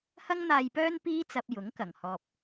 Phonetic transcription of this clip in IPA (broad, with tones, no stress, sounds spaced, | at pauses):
h ɐ˥ ŋ n̪ aː˧ j p œː˥ n p iː˥ t͡s ɐ˧ p̚ j ʊ˨˥ ŋ k ɐ˨˩ ŋ h ɔː˨ p̚